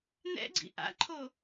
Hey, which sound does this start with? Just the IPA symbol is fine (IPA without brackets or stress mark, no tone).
n̪